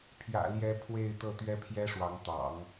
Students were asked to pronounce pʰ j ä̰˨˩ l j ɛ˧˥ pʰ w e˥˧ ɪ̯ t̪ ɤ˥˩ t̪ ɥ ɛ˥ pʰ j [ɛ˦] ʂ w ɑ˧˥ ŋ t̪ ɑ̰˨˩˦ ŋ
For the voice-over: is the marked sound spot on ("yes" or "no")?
no